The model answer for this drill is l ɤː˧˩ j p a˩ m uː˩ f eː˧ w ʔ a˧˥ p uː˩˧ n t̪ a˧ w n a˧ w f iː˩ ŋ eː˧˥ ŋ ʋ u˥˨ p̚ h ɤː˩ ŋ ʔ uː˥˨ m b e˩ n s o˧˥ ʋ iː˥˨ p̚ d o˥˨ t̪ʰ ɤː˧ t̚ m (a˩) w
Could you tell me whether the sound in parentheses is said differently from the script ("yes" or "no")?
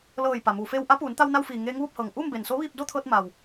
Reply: no